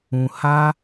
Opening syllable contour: low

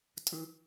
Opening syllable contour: high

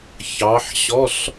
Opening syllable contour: rising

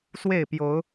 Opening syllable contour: falling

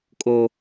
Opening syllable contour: high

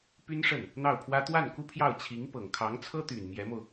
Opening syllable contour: high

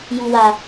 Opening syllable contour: low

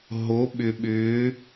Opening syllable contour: rising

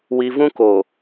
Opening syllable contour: high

